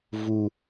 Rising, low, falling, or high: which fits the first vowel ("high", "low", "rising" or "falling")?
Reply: low